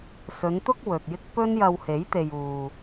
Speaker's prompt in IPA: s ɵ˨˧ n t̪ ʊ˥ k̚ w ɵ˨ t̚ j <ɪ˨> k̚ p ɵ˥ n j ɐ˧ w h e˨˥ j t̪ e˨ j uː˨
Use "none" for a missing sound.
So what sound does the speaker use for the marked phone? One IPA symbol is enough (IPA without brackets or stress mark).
ɪ˥